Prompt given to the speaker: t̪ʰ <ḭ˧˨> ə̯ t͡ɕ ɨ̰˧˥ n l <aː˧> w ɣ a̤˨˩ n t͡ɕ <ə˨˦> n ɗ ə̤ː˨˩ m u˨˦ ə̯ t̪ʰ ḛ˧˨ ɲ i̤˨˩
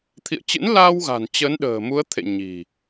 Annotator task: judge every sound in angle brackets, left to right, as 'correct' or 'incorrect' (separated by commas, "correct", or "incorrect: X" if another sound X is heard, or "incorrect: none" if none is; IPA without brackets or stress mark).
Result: correct, correct, correct